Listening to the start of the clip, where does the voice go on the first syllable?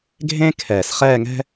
high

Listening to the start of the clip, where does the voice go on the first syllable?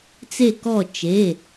falling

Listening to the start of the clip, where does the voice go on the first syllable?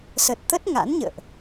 low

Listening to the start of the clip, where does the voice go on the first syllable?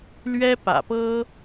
high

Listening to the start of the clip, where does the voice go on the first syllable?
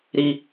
high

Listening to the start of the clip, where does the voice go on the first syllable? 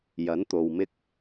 rising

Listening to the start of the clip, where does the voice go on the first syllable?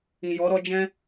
low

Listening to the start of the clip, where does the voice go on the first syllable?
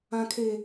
high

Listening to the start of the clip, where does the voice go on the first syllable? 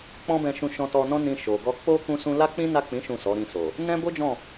high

